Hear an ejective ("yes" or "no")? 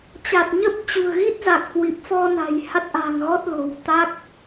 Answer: no